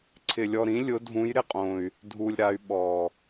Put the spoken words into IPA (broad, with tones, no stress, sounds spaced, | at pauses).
ǀʰ ɪ˧ lʲ ɔ˧ ɾ ĩ˧˥ lʲ ʊ˧˥ dʱ ũ˧˥ j ɾ ɪ˧˥ qʼ õ˧ y̯ | dʱ u˧ lʲ ɾ a˧˥ y̯ ɓ ɔ˧